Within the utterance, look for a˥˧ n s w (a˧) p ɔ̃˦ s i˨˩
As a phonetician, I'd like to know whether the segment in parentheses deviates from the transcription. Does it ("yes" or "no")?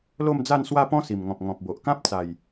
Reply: yes